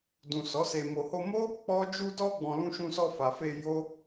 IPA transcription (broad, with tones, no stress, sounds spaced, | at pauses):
d ũ˨ s ɔ˨˦ s e˧ m o˧ h o˧ m o˦ | k͡p ɔ˦ d͡ʒ u˧ d ɔ˧ ɡ͡b ɔ̃˨ l ũ˧ ʃ ũ˧ s ɔ˧ f a˨ f e˧ j o˦